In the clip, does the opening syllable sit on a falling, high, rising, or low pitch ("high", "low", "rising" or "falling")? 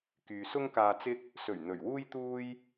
low